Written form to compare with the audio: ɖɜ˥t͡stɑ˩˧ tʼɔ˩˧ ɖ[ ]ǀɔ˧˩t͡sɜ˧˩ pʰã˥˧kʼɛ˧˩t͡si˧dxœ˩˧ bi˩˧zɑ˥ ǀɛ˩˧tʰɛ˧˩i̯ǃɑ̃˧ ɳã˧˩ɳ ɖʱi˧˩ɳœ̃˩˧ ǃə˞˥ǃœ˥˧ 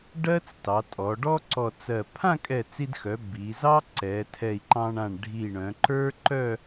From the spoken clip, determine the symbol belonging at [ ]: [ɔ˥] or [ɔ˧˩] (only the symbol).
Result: ɔ˥